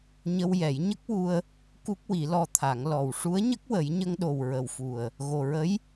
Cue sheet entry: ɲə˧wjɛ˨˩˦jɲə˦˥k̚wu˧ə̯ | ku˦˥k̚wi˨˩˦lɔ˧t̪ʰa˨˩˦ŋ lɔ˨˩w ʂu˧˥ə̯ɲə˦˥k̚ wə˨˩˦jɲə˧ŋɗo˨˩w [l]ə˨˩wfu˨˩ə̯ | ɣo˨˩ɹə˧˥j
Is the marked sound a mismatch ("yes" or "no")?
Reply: yes